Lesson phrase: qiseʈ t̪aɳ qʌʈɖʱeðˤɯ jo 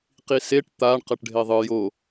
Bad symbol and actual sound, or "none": none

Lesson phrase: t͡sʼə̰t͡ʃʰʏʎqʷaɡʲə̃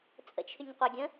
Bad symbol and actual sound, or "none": ʎ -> ɲ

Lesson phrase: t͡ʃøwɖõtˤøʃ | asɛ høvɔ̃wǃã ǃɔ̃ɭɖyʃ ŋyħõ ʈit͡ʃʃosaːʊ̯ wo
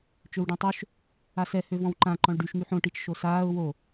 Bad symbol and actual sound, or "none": none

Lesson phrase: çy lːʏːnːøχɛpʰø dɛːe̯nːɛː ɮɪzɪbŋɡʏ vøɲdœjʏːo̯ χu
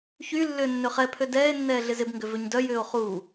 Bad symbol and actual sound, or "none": none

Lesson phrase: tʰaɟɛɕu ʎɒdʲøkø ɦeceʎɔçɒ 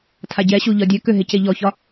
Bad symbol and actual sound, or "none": none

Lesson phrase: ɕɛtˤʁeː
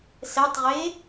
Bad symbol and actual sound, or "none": ɕ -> s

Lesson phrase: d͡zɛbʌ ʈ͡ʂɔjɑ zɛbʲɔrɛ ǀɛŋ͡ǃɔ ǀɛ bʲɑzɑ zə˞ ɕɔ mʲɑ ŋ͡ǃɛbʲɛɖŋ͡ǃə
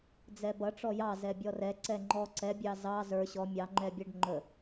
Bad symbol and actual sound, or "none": none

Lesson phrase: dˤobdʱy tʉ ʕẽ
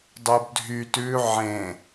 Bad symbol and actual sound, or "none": none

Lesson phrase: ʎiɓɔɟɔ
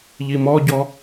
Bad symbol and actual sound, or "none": ɓ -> m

